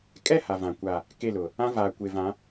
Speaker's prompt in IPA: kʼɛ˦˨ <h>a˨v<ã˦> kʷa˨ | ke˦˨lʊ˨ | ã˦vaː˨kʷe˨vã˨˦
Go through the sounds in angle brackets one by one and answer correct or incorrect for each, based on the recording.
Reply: correct, incorrect: ã˨

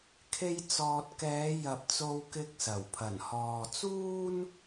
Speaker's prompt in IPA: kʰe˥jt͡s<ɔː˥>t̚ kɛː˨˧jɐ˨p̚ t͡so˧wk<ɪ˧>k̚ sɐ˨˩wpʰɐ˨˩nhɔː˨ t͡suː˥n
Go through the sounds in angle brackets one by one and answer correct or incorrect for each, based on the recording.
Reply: incorrect: ɔː˧, correct

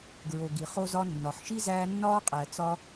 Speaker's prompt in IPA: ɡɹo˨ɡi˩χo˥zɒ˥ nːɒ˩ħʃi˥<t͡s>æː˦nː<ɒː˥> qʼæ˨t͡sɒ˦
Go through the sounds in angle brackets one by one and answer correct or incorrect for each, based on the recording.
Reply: incorrect: z, correct

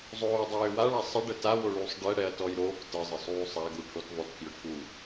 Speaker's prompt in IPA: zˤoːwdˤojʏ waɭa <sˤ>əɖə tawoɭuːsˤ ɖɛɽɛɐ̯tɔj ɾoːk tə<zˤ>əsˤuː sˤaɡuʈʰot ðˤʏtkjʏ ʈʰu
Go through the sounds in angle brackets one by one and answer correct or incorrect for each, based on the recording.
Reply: correct, correct

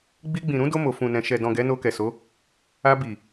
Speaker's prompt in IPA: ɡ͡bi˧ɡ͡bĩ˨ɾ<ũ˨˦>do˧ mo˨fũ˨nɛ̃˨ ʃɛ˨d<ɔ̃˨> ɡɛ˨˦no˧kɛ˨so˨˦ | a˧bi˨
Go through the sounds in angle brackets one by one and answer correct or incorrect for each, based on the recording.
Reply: correct, correct

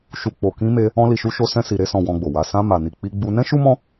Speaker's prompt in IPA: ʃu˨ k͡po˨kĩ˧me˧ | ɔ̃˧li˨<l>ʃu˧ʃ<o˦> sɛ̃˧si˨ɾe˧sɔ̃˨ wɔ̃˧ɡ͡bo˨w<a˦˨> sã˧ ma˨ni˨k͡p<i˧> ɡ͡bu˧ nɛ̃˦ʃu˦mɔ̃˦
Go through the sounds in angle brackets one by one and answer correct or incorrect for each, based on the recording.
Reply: incorrect: none, incorrect: o˧, incorrect: a˨˦, correct

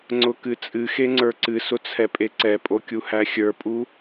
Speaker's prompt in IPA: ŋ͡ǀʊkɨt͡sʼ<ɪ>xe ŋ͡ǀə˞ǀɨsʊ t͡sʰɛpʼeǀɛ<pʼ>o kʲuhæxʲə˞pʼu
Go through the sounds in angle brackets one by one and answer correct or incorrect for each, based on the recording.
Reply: incorrect: ɨ, correct

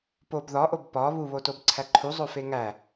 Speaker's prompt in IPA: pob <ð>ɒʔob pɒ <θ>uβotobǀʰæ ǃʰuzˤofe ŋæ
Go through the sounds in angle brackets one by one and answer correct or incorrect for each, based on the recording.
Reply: correct, incorrect: β

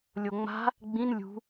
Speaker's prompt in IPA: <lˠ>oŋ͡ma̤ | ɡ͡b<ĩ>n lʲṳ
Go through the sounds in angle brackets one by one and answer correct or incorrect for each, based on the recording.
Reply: incorrect: lʲ, correct

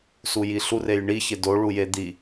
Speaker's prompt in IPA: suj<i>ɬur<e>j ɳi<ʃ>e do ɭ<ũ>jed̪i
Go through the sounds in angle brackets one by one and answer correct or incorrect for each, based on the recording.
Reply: correct, correct, incorrect: ç, incorrect: u

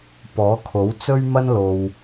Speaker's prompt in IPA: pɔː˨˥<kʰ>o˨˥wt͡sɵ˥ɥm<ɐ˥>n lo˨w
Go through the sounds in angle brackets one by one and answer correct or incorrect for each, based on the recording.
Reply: correct, correct

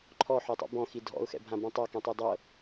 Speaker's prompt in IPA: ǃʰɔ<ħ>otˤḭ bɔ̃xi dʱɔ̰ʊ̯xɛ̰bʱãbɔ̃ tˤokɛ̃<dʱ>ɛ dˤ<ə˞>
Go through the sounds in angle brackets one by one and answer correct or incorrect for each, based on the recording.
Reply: correct, incorrect: tˤ, incorrect: ɤ

